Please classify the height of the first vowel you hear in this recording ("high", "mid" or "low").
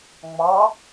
low